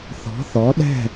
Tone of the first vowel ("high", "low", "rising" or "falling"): rising